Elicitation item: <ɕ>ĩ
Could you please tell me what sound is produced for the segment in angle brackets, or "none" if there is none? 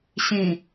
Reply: ɕ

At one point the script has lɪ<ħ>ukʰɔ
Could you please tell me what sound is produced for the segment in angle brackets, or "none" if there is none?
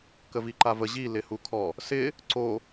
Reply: h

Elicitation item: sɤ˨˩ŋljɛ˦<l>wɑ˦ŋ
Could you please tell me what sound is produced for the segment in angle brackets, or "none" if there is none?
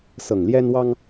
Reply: n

